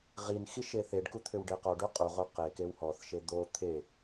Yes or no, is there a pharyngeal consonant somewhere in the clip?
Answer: no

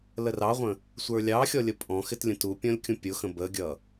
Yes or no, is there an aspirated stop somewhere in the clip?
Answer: no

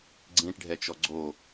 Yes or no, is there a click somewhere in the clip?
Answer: yes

